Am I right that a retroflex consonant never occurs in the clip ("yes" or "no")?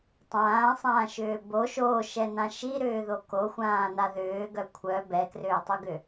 yes